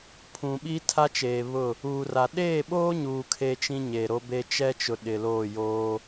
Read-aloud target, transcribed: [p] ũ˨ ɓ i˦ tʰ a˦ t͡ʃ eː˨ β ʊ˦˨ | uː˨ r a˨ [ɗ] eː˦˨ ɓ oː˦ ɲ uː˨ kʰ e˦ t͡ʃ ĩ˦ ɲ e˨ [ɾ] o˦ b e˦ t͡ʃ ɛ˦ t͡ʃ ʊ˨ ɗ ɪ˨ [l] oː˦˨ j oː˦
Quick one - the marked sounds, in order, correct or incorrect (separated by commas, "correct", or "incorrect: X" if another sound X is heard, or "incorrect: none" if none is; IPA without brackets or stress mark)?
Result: incorrect: pʰ, correct, correct, correct